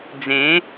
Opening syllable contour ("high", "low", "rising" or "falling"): rising